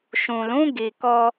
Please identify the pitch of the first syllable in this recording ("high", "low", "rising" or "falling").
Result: low